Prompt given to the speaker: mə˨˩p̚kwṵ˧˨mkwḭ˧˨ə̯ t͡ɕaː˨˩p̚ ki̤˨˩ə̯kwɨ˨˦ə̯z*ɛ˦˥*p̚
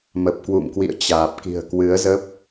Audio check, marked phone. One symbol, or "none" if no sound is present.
ə˦˥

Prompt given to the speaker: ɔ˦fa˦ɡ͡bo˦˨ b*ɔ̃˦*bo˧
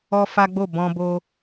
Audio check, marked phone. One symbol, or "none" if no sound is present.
ɔ̃˧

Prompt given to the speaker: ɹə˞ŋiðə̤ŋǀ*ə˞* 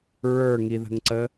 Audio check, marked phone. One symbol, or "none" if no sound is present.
ə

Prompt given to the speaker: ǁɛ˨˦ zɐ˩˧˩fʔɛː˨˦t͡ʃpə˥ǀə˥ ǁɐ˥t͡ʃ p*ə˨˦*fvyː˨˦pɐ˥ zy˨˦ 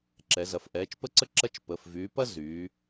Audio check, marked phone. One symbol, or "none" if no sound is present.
ə˩˧˩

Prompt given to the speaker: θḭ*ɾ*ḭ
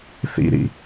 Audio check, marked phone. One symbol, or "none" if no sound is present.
ɾ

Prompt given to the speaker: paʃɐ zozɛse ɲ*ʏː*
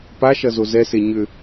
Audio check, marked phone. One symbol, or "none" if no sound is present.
ʏ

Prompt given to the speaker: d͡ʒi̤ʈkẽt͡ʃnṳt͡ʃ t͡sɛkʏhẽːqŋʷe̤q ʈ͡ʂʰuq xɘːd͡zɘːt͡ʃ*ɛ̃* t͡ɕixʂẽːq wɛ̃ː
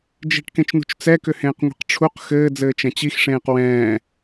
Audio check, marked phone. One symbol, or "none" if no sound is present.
ɛ̃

